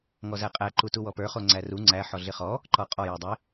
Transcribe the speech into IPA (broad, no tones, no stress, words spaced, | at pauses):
ŋɔzæqʼæ ǃutuwɔpə˞ χoŋ͡ǀæru ŋ͡ǀæ ħɔɮɪχɔ | ǃɔqʼɔ jodˤɪ